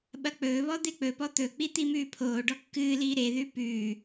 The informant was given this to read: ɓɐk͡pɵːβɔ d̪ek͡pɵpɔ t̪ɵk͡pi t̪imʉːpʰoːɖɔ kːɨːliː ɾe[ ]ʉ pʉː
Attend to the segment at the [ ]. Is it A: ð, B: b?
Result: A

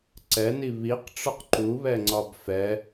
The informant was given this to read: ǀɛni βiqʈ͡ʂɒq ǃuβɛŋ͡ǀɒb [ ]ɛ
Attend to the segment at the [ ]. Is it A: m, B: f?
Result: B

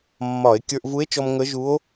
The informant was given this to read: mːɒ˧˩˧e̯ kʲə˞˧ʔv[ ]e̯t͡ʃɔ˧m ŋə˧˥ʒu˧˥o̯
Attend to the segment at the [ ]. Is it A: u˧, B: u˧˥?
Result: B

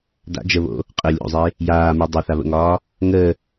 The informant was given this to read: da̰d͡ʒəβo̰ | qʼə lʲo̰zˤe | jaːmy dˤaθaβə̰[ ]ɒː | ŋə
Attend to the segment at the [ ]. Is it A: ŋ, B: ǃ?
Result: A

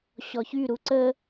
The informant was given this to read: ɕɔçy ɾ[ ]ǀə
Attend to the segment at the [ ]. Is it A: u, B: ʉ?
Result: A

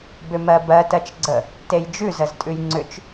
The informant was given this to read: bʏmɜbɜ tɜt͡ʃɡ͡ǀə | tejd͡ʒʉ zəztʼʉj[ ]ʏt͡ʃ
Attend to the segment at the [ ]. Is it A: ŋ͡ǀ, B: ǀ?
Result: A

